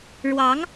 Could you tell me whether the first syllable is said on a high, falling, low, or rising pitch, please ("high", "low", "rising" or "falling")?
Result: rising